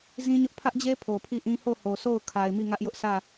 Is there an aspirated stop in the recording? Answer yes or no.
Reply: yes